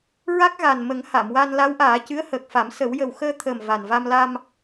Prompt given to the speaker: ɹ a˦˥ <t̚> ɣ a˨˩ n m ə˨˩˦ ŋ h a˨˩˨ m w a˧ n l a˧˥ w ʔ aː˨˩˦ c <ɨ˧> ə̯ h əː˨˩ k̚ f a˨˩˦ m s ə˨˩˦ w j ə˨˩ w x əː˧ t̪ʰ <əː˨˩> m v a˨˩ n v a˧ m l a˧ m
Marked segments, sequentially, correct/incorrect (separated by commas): incorrect, incorrect, correct